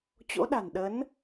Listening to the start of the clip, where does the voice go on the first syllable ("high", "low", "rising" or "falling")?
rising